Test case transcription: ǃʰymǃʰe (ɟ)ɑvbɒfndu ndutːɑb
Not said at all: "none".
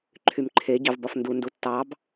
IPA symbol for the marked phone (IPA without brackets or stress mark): ɟ